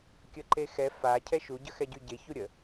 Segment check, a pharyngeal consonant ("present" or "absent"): absent